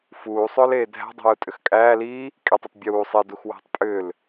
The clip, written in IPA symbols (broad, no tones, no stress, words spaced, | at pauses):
fuːsˤʏːleː dʱæ̤dˤi̤ju tʼʏxkʼæː liː | kʼitˤitˤ bʲuː sˤi duxwæ̤tˤ pʼʏːl